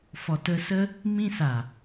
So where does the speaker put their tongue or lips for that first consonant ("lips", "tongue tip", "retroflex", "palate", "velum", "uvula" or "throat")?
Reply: lips